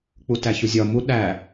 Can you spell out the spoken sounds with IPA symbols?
k͡putæçuzʲɒ mu ɗæ

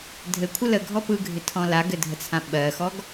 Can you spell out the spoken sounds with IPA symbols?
dʱɘkʷʰə ləɡʱɔ pɯɡʱɪtʰɔ̃ laɡɘdʱət͡sʰã ɓɜxɔɡ

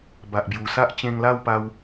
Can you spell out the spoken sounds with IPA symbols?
ba˨ʔbju˨˩sa˦ʔ t͡ɕẽ˧ŋla˥˧wpa˧w

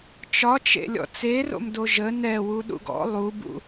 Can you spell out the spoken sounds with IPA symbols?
t͡ʃɒt͡ʃḛlʲɔ̰ t͡sero̰mdo ʒə nɛwuɗṵɡ ɔ̰ lˠubṵ

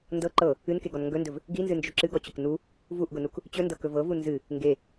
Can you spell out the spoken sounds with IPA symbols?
ndɤ ǃɤ | ɨnkeɡɔn ŋɡɵndɵv | ɡinzɨnd͡ʒɵ ǁɨɡɔt͡ɕʊk nu | vuʔɡʊnuk | t͡ɕɵndɤkɵ vɤvu nzɨ | ŋɡe

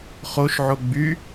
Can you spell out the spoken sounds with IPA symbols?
χoʃʕo ɡ͡by

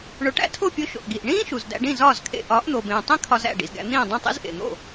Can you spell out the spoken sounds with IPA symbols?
ɳo˩˥ʈæ̰˧tʰo˥˩pʲo˧ ʃo̰˩ʔɡi˩ʔ ɳĩː˥ ʃu˩zdæ̰˧ɖĩ˥˩ zɒː˥˩zkʰḛ˧ ʔɒː˩˥ʔn̪o˩bẽː˩tˤĩ˥ kʰɒ˧zæ̰˥˩ ɖḭ˩zɡæ̰˧ n̪ĩː˥˩dˤũ˥˩tˤḭ˥z ʔḛ˩n̪o̰˥˩

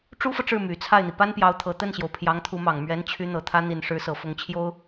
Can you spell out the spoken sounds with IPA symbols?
ʈ͡ʂu˥fɤ˨ʈ͡ʂɻ̩˥˩ my˨˩t͡sʰa˥˩ɪ̯n̪i˩ pa˥npjɑ˧˥ʊ̯t̪ʰɤ˨˩ t̪ə˥˩nɕjo˩ʊ̯ pʰjɑ˧˥ŋt̪ʰu˧˥mɑ˨˩ŋ mɥɛ˧˥nt͡ɕʰy˧˥ n̪ɤ˨˩t̪ʰä˧˥ n̪i˨˩n ʂɻ̩˧˥sɤ˨˩fʊ˧˥ŋt͡ɕʰjo˥ʊ̯

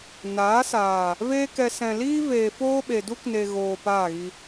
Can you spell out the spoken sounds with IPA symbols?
naː˨˦saː˨ | veː˦kɛ˧ sɛ̃˨liː˦veː˨ foː˦ɓe˨du˦kne˨ ɣoː˨ paː˦˨ɣi˧

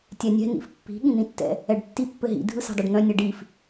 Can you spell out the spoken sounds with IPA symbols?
tʲɛnʲɛ̤ n̪ḭfpːi̤ ɠĩn̪ĩtːɛ̰ | ɛɖtːi pːɘɦḭ dʱɯsɛ̤dˤœɖn̪œ̃ nʲɘɖif

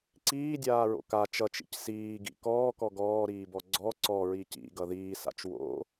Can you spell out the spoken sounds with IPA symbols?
ǀiːdʲaːɹo̰ ka t͡ʃʌt͡ʃḭc siːɡḭ kɔːkɔ ɡɔːɾiːbɔ ɡ͡ǀɔ ǀɔɹi cḭɡʌ ðiːsa̰t͡ʃ wo̰

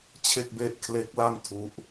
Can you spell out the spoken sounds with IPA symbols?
t͡ɕʰe˥˩k̚be˥˩ʔ kʰle˦˥k̚la˥˩n tʰu˦˥ʔ

